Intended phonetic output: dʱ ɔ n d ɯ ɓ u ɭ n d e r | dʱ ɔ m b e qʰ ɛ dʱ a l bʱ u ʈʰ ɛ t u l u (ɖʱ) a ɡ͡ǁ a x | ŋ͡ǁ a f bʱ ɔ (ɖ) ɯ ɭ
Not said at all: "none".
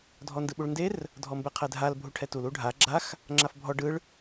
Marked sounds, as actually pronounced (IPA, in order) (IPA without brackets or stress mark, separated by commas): ɖʱ, ɖ